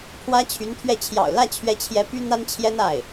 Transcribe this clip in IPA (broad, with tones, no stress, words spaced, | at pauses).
pʰwä˥ t͡ɕʰy˧˥nt̪ʰɥɛ˥˩ t͡ɕʰjɑ̰˨˩ʊ̯lä˥˩t͡ɕʰɥɛ˧˥t͡ɕʰjɛ˧˥ py˥n̪a˥nt͡ɕʰjɛ˥n a˥˩ɪ̯